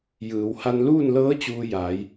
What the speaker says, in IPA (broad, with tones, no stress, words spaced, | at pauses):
jɯː˩˧wha˧nluː˥˨n lɤː˧˥ t͡ɕuː˧jaː˩˧j